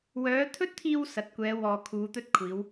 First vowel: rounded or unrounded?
rounded